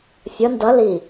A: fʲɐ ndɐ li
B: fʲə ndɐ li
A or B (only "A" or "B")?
B